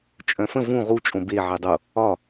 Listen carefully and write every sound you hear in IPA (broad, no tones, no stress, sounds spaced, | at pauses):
t͡ʃʼ œ̃ f ə̃ v ũ ʁ u t͡ʃʼ õ b e ʕ ɛ dˤ o | ɒ